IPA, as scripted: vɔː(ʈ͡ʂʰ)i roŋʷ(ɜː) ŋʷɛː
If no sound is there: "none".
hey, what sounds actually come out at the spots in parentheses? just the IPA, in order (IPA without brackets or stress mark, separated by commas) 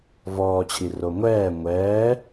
t͡ɕʰ, ɛː